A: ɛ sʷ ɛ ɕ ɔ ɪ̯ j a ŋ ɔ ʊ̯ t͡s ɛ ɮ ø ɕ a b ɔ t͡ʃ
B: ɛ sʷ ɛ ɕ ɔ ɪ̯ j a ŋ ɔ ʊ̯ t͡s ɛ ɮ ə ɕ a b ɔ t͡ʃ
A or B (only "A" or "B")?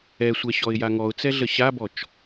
B